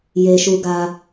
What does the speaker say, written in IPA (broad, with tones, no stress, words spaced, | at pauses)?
je˦ʃu˦ɡa˦